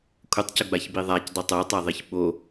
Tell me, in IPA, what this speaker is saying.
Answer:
kʷʰətˤcʊɡ͡baçbi ðˤacdˤʏ tˤotˤaðˤiç ɓo

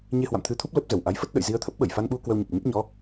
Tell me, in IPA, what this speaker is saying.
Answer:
ɲe˧hwa̰˧˨mt̪ʰɨ˧t̪ʰu˦˥p̚ lə˦˥p̚ zə˧˩w ʔa˨˦jfə˦˥t̚ ɗə̰˧˨jzi˧ə̯t̪ʰə˦˥p̚ɓə˧˩j fa˧nɓu˧ kwə˧wɲə˨˩p̚ɲə˦˥p̚ ɲɔ˨˦

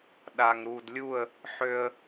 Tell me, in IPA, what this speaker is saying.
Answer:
ɗa˨ŋɾu˨dlʲu˦˨ə̯ | ħø˦ə̯

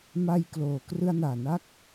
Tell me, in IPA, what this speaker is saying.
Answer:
ma˧jkloː˩˦ krɯ˧a̯naː˨˩na˥˩k̚

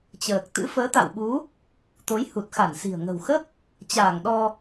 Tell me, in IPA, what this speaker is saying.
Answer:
t͡ɕəː˨˩k̚t̪ɨ̰˧˥ fəː˨˦t̪a̰˧˨wɓu˨˦ | t̪o˨˦jhu˨˩t̚ xa˧˩nsi̤˨˩ə̯ ŋə̤˨˩wxə˦˥p̚ | t͡ɕaː˧˩ŋ ɗɔ˧

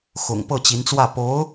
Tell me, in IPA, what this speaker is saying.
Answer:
xʊ̰˨˩ŋ pɤ˥˩t͡ɕi˧˥nt͡swä˥˩ po˧˥ʊ̯

